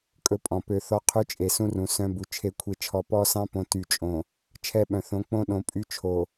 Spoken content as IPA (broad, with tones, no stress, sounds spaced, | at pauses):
kʼ ɵ˦ pʼ ɔ̃˨ p ø˦ θ ɔ˦ qʰ ʉ˦ t͡ʃʼ e˨ s ũ˦ r ũ˨ s œ̃˦ b u˨ t͡ʃʰ e˦ kʷʰ e˦ t͡ʃʰ ɔ˦ p ɔ˦ s ɑ̃˦ p õ˨ t y˨ t͡ʃʼ õ˨ | t͡ʃʰ ɛ˦˨ ɓ œ̃˨ θ õ˨˦ k͡p õ˦ ɗ õ˦ pʼ y˦ t͡ʃʰ o˨